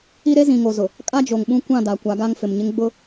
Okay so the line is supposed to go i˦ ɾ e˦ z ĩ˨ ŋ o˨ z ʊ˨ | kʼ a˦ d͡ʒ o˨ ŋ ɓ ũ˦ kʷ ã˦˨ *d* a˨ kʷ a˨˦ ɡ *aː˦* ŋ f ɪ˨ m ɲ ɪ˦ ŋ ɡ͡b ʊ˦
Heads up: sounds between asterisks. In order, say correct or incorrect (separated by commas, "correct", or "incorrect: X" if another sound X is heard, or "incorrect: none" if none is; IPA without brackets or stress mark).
correct, incorrect: a˦